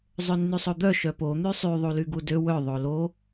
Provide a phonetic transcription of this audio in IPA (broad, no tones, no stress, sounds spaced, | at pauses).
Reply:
zˤ ø nː y sˤ o d̪ œ ʃ œ p o n̪ y sˤ y ðˤ u l y ɡ u d ø w œ ðˤ o l o